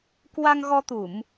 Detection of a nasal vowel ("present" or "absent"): absent